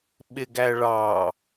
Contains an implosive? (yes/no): yes